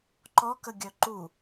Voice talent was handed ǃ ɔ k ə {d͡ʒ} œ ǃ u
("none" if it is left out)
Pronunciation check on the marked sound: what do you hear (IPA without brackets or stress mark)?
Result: ɡʲ